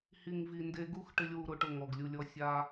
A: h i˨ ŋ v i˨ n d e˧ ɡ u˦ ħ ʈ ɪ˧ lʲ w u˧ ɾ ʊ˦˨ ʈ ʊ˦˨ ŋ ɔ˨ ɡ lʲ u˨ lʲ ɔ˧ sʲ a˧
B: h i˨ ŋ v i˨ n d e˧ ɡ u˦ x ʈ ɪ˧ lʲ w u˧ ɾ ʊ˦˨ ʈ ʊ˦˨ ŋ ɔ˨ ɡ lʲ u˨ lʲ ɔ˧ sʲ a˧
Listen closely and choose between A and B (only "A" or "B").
B